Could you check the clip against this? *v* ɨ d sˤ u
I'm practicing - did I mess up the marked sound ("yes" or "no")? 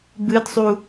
yes